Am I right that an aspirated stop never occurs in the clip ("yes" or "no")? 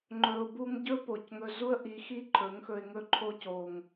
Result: no